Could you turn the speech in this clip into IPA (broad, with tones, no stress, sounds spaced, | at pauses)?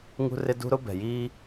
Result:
ŋ ṳ˦ r ɪ˦ d ṳ˦ ɾ ʊ˦ b ɛ̤˨ j iː˦